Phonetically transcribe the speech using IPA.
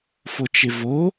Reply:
f o t͡ʃ ɪ v o

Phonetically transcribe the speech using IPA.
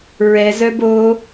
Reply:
ɹ ɛ z œ b o

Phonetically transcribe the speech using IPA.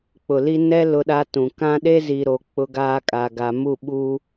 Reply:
k͡p ʊ˨ l i˦ n ɛ˦ l ʊ˦ ɗ a˦ t ũ˨ k ã˦ ɗ e˦ z i˨ ɾ o˨ k͡p ʊ˦ ɡ aː˦ kʼ a˨ ɡ a˨ m u˦˨ ɓ u˦

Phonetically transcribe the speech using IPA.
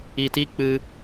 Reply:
i˨ t i˦ k͡p ɨ˧

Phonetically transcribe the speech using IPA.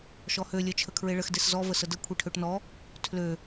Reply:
ʃ ɔ h ø lʲ œ t͡ʃʰ ə kʰ ɹ e ɭ ə x d e s z ɔ v ə s ə d ə kʷʰ e ʈʰ ø ʈ n ɔ | tʰ l ø

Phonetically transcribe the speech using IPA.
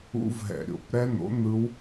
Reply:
ṵ˦˥ v ɦ ɛ̰˧˩˧ ɾʲ o̰˧˩˧ p ɾ ɛ˦˥ n̪ o̰˨˥ n̪ ɯ˦˥ w

